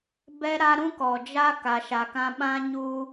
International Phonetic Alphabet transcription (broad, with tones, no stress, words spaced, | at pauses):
bɛ˦ ɾa˦ ɾũ˦kɔ˨ d͡ʒa˦ ka˨ʃa˨kã˦ ɓã˦ɲuː˦